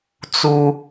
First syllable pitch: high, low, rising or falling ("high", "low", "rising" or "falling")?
low